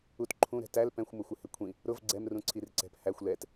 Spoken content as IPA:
u t ǃʰ ũ ɾ ɛ̤ t æ l p ɛ̃ xʷ m ʊ xʷ ɪ h ɪ kʷʰ ĩ | ɾ ʊ v ɡ͡ǀ ɛ m r ũ ǀʰ i r ǀ ɛ̤ p h æ xʷ l ɛ t

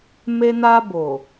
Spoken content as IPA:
m e˧ n a˧ b o˨

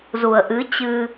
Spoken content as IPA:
z u˨˩ ə̯ ʔ ɨ˨˦ t͡ɕ ɨ˧

